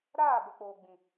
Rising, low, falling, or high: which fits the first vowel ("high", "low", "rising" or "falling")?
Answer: falling